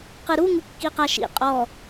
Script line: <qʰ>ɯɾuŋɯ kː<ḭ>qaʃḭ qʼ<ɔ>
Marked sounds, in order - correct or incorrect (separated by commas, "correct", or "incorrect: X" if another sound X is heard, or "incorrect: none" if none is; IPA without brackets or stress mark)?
incorrect: q, incorrect: i, correct